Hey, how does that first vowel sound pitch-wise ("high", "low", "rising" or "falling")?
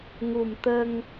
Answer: low